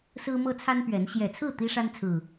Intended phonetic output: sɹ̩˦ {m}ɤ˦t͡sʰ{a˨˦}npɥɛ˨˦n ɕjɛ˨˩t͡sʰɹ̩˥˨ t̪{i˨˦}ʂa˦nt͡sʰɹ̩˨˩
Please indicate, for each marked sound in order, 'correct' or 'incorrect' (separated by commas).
correct, incorrect, incorrect